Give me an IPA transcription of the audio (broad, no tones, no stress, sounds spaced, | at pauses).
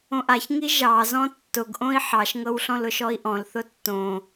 õ ʔ a ç ŋ i ʒ ɑ z ɔ̃ tː ʊ ɡ ʔ õ i̯ ħ ɑ ʃ ŋ ɤ w ɬ ɔ̃ l ʊ ʃ ɔ i̯ ʔ ɔ̃ l θ ʊ tː õ